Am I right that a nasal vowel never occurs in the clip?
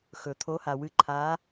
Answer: yes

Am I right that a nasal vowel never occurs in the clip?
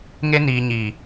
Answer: yes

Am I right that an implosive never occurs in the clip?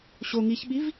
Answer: no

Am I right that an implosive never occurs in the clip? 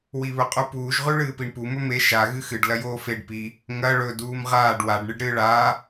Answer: yes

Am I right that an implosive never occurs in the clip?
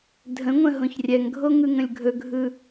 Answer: yes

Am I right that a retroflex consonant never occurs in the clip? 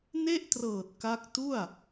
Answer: yes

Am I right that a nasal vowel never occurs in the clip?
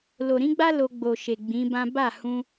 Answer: no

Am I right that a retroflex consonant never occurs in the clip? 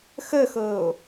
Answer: yes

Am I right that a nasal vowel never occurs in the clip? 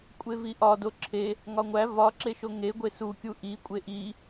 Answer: yes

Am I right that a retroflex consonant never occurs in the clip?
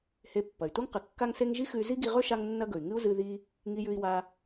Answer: yes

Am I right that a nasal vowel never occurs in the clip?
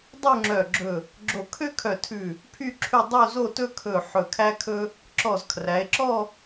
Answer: yes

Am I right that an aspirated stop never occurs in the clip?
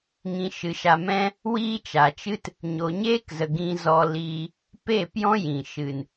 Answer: yes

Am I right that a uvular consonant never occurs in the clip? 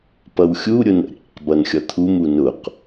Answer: no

